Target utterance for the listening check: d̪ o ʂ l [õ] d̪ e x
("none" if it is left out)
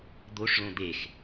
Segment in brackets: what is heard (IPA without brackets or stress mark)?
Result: õ